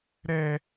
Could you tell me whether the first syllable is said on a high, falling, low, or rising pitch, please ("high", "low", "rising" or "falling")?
high